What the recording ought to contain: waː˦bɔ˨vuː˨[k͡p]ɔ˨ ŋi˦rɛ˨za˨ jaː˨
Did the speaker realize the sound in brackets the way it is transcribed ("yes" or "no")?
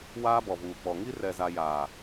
yes